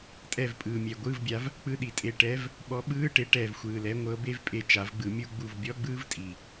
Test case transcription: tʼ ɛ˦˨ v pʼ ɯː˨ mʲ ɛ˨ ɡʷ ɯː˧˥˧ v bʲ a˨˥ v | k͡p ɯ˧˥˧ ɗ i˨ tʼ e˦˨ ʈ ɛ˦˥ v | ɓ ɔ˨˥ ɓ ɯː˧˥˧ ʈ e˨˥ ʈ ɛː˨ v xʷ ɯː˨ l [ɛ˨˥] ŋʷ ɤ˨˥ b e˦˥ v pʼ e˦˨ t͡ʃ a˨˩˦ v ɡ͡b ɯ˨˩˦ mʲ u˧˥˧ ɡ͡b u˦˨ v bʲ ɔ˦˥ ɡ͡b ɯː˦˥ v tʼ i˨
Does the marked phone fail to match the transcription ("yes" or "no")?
no